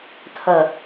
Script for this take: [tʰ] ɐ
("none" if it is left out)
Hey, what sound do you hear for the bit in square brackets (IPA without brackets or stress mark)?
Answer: tʰ